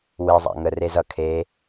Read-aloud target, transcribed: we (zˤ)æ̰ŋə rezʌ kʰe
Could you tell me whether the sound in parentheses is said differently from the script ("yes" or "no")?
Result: no